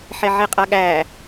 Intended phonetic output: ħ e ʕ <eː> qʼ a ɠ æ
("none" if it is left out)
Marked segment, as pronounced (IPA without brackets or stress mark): e